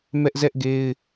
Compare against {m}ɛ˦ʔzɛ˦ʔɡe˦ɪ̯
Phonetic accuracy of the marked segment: correct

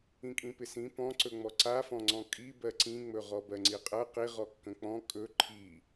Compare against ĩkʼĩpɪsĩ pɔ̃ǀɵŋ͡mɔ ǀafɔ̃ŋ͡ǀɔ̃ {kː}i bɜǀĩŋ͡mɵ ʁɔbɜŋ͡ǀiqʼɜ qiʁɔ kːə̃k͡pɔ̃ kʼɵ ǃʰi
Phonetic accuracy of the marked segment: incorrect: kʼ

